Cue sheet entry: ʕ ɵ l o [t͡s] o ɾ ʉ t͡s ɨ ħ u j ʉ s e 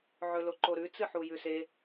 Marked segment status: incorrect: ǃ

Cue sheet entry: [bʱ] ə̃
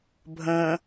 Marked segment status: correct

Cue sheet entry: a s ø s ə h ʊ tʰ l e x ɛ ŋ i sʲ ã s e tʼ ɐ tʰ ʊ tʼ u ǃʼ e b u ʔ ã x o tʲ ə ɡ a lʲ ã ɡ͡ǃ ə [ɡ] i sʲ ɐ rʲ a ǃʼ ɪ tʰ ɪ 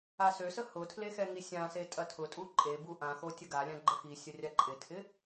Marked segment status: incorrect: x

